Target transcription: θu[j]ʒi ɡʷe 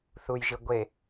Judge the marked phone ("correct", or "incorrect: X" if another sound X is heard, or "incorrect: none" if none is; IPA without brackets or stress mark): correct